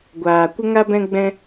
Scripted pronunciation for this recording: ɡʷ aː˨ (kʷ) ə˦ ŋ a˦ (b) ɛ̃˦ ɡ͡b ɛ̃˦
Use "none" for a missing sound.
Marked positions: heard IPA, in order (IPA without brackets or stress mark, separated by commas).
kʷ, b